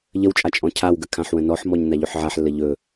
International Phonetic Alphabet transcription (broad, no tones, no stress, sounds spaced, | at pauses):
ʎ ə w t͡ʃʼ a t͡ʃʼ ɔ̃ cʰ a w ɡ ə kʰ ã ħ w ə̃ n ɔ ħ m ɔ ɲ n a ʎ ɵ ħ ʕ a ħ lː ə ʎ ɵ